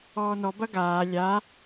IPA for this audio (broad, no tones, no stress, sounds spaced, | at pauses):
ɔː n ɔ b ɐ ɡ aː lʲ a